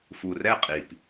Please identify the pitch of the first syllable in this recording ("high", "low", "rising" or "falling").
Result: low